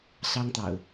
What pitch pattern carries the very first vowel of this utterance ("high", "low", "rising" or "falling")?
high